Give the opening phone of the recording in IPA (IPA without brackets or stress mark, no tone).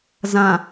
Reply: z